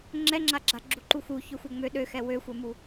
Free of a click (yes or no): no